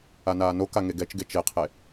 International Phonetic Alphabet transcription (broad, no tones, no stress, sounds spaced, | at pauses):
a n aː n o k a ŋ e ɡ ɛ t͡ʃ ɡ e t͡ʃ e qʰ e